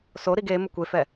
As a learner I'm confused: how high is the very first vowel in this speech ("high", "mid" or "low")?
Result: mid